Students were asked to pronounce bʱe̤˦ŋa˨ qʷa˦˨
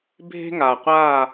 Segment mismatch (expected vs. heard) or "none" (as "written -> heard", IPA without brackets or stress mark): none